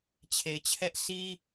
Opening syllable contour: low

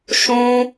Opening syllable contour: high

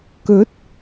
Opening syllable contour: rising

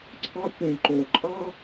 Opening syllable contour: high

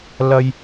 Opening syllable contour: low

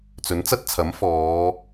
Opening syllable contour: rising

